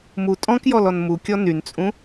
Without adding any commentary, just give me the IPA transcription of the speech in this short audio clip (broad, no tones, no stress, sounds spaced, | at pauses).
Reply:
m u tʼ ɔ̃ k j ɔ l ɔ n m u kʲ ɔ n y n t͡sʼ ũ